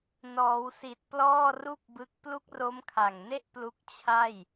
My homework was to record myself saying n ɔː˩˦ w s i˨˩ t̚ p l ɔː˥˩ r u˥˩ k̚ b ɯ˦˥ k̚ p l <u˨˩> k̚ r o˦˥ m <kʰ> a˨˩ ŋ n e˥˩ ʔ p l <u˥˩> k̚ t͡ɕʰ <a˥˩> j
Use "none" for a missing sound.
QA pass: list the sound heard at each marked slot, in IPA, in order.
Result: u˦˥, kʰ, u˦˥, a˥˩

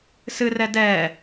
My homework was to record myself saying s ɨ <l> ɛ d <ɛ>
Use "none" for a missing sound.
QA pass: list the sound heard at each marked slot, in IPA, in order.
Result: r, ɛ

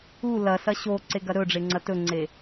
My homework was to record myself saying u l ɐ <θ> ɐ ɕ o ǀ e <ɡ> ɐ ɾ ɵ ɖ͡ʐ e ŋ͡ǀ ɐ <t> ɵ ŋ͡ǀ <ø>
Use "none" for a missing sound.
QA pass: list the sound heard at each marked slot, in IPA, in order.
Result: s, ɡ, t, e

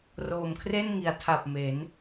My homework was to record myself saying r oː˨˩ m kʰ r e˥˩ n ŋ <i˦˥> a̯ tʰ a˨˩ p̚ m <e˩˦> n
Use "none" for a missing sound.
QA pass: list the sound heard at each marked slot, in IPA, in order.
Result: i˩˦, e˩˦

